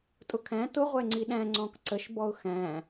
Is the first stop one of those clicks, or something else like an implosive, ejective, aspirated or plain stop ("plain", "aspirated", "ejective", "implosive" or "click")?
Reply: ejective